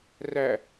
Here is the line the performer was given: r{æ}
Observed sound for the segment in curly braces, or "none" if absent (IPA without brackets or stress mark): æ